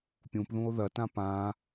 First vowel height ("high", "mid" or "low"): high